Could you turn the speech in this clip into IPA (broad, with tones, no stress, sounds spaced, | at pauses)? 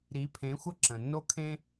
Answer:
ɾ i˨˦ pʰ ẽ˨˦ xʷ ʌ˦ ǁ ə̃˨ nː o˦ kʰ ẽ˦